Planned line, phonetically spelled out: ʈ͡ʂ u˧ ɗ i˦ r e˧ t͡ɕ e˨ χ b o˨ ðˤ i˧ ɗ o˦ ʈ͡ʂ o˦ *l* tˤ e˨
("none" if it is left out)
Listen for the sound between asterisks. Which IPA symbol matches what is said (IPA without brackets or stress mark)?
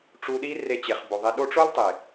l